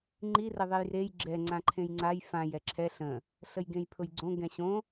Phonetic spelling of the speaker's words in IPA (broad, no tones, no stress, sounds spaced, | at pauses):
ŋ͡ǃ i r ə ðˤ e j r e j ɡ͡ǁ ɛ ŋ͡ǀ ã ǃʰ ẽ j ŋ͡ǀ a j f ã j ɛ ǁʰ ɛ ɬ ə̃ | ɬ ə j ɡ ẽ j pʰ ʊ j ɡ͡ǀ õ ɡ ɛ̃ ɕ õ